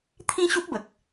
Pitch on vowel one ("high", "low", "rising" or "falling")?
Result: high